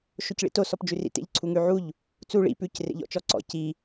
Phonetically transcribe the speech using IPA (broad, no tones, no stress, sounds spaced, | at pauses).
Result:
ʃ o c ɭ ḭ t o s ɔ p d͡ʒ ʉ r ḭ t ḛ ʎ ǀʰ u ŋ ʉ ʕ u ʎ | t͡s u ɭ ḭ p ʉ c r ḛ ʎ ɔ̰ t͡ʃ ɔ ǀ ɔ̰ c i